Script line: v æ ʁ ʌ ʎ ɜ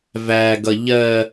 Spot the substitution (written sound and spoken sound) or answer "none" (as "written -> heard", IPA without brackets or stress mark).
ʁ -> ɡ